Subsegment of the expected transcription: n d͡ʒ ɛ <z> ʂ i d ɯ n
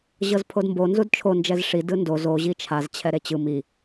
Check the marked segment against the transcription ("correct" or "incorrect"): correct